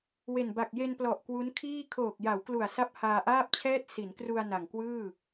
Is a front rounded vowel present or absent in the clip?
absent